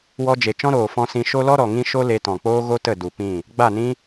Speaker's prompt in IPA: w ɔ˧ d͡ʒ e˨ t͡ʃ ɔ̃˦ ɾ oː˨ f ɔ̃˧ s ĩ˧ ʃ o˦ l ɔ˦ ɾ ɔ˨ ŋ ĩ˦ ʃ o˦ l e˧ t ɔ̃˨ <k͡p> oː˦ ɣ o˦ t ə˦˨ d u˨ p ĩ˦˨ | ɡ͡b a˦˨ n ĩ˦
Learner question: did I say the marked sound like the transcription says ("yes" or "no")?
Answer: yes